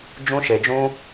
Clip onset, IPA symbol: d͡ʒ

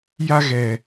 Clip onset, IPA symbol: j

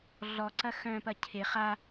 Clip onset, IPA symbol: ɮ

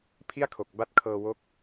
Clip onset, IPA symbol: pʰ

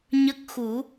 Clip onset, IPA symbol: ɲ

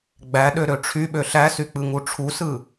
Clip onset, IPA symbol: ɡ͡b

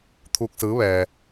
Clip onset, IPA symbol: t̪ʰ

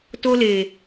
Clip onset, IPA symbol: t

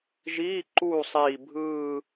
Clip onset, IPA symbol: ʒ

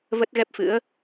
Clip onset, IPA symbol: v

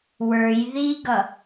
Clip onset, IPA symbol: w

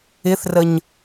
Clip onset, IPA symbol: ɪ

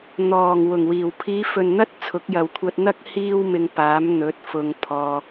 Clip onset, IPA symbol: n̪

